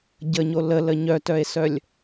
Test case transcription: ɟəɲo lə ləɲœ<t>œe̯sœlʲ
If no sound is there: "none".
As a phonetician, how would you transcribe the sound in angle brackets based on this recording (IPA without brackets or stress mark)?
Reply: t